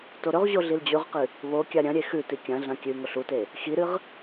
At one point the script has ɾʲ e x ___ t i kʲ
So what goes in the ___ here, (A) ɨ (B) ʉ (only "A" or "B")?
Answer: B